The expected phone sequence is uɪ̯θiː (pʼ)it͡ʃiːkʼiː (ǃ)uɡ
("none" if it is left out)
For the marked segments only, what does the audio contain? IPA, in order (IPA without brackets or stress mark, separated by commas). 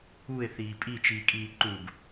pʼ, ǃ